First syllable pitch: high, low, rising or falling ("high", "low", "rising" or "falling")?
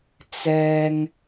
low